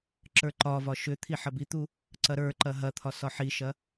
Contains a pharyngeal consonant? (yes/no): yes